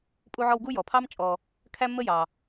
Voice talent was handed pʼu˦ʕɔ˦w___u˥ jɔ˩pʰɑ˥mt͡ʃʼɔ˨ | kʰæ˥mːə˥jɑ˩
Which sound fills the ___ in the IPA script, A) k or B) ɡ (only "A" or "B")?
B